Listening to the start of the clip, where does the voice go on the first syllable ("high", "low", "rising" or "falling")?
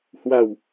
low